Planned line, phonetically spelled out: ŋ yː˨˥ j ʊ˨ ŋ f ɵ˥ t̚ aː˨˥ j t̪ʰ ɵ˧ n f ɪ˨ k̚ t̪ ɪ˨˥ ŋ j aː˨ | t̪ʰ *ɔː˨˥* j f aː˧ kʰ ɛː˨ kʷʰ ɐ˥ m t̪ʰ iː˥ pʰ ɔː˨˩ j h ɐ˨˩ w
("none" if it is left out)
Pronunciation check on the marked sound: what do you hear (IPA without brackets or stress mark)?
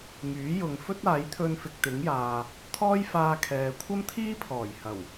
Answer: ɔː˥